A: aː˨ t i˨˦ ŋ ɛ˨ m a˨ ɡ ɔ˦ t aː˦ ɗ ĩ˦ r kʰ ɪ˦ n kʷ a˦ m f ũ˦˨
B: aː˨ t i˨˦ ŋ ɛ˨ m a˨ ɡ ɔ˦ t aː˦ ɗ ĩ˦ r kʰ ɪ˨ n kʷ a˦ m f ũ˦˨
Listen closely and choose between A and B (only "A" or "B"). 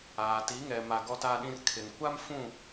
B